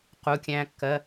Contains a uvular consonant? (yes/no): yes